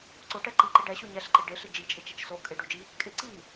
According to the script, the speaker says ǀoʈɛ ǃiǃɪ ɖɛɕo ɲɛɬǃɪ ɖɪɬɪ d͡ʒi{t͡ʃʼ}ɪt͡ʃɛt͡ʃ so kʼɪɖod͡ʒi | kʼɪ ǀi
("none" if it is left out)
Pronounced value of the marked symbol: t͡ʃʼ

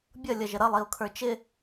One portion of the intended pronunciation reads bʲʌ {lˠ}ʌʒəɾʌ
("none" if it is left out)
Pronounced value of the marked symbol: lʲ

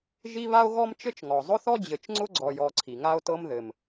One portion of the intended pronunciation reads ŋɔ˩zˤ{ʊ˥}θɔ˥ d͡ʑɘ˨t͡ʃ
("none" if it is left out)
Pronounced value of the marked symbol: ʊ˥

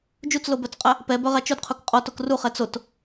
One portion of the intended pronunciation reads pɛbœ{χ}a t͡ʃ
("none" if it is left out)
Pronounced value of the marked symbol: ʁ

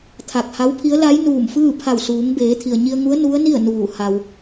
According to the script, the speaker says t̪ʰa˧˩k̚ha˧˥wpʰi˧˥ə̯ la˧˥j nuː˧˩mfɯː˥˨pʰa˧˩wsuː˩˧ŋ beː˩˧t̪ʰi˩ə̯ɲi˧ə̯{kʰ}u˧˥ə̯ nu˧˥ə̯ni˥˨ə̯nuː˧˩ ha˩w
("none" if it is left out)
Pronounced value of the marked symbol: ŋ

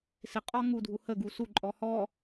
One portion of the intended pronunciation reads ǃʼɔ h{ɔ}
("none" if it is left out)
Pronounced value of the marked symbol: ɔ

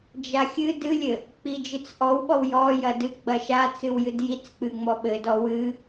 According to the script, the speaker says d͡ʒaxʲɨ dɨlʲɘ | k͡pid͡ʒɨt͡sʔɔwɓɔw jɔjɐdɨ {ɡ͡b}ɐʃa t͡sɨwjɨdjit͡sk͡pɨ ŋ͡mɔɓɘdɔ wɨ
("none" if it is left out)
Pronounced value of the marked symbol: ɡ͡b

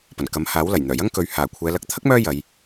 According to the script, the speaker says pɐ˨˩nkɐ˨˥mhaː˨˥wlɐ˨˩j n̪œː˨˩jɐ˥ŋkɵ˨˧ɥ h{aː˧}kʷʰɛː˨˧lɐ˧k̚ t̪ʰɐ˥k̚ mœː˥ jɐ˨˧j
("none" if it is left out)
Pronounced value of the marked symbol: aː˨˩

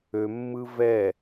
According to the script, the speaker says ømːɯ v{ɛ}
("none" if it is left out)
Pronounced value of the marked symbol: ɛ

